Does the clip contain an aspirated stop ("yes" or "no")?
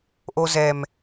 no